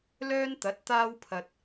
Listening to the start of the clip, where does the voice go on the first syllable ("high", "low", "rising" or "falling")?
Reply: high